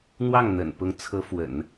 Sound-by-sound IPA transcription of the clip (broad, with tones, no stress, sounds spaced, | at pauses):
n̪ w ɑ˥˩ ŋ n̪ ə̰˨˩ n p ʊ˧˥ ŋ t͡sʰ ɤ˧˥ f w ə̰˨˩˦ n